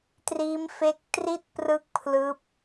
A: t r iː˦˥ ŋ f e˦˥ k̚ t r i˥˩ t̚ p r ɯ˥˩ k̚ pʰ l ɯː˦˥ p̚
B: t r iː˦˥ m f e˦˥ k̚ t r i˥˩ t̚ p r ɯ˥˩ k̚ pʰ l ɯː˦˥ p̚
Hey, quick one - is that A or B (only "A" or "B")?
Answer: B